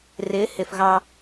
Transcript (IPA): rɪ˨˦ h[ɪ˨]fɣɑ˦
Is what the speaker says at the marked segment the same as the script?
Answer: yes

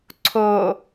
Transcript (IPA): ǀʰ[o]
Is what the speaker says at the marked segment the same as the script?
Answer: yes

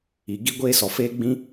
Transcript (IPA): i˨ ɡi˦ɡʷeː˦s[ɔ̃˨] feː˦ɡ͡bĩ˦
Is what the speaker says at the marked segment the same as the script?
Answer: no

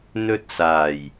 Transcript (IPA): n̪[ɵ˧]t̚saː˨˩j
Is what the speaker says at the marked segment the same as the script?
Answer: yes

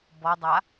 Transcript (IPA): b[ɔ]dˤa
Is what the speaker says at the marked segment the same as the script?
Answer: yes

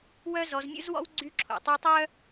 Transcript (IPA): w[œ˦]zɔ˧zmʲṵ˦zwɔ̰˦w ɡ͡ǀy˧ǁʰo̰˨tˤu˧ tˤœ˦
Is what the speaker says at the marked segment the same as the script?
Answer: yes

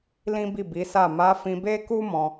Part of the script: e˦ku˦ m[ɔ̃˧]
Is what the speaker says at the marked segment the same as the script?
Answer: yes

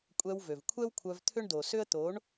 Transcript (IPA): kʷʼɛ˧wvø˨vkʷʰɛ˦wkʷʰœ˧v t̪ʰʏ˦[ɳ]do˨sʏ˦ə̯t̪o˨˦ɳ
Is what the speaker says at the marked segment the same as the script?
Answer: yes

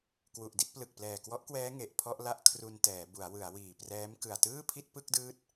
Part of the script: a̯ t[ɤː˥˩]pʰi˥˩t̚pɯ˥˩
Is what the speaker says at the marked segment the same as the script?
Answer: no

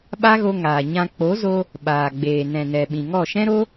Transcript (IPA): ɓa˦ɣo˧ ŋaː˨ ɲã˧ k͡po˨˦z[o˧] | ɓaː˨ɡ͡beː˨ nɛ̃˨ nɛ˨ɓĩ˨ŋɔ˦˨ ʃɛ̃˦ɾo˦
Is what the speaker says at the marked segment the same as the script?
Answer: yes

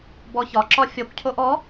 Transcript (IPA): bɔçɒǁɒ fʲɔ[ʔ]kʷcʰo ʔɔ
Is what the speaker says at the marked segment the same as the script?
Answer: no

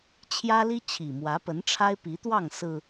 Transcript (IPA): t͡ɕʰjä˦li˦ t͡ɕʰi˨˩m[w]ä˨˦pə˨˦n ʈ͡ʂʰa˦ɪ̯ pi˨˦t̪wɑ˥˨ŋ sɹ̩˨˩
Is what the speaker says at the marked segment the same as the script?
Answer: yes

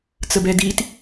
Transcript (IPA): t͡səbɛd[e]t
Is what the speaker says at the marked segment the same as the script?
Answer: no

